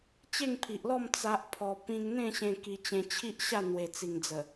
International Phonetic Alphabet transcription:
t͡ɕ e˥˧ ŋ pʰ i˨ ʔ l ɔ˥˧ m t͡s a˦ ʔ pʰ ɔ˧ p ĩ˧ ŋ n̪ ẽ˥˧ ɕ ẽ˧ k i˧ t͡ɕ ẽ˧ t͡ɕʰ i˦ ʔ ɕ a˥˧ n̪ w e˨˩ t͡s i˨˩ ŋ d͡z ə˨˩

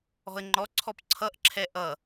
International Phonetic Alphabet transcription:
ɔ̤ ə̯ ŋ͡ǃ ɔ ǀʰ ɔ p ǀʰ ʌ ʔ ǁʰ ɛ ʔ ʌ

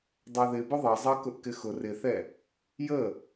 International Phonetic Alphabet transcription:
dˤ ɑ ð ɪ b ʊ ðˤ ɑ zˤ ɑ k ʊ ʔ k ɪ x ʊ r ɪ θ ɛ | j ə

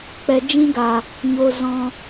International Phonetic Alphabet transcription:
k͡p ɛ˨ d͡ʒ ĩ˧ ɡ a˨ | ɲ o˧ z ɔ̃˧

